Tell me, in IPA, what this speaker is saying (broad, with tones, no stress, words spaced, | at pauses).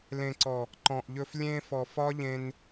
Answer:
lẽ˨ǀɔ˨ | ǃɔ̃˨ʔʎɵ˧f lʲẽ˧fɔ˨fɒ˦ʎẽ˧n